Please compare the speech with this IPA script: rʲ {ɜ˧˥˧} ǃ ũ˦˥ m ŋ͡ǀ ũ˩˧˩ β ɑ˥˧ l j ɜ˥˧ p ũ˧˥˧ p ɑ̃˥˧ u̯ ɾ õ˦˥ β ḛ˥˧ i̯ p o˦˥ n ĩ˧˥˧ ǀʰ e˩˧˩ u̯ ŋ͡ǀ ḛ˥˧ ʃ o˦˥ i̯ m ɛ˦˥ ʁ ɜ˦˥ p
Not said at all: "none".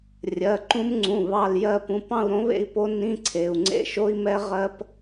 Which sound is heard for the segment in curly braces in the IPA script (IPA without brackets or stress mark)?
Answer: ɜ˩˧˩